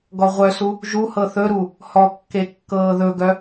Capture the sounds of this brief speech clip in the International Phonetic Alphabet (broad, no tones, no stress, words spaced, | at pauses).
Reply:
ɡɔʁʷœsu | ʒuhɤ θɵɾu | hɔkːe kːɤːðɵɡœ